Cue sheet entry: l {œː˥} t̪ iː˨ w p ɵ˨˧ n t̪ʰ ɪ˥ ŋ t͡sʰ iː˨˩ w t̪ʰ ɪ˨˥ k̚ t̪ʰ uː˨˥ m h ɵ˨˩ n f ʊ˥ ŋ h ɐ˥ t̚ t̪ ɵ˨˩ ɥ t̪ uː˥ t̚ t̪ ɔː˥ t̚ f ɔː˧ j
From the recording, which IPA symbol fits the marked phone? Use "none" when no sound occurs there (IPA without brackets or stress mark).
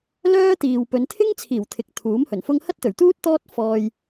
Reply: œː˥